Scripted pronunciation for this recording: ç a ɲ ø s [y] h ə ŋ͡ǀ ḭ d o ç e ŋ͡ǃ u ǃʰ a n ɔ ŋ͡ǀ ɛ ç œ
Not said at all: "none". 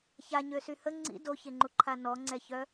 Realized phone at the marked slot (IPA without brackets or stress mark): y